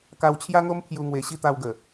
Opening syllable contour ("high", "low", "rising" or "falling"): low